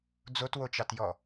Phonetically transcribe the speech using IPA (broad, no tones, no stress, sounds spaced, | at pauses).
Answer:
d͡z o t w o t͡ʃ ɑ t j ɔ